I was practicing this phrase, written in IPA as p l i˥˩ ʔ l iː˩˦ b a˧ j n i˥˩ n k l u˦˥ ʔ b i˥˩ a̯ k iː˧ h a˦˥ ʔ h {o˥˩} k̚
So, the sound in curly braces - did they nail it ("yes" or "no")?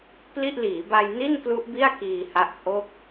yes